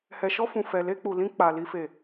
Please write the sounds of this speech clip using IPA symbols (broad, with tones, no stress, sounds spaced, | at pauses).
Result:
h ɛ˨ ʃ ɔ˧ f ũ˨ f ɛ˨ l e˧ k͡p u˨ l ĩ˧ k͡p a˨ l i˨ f e˨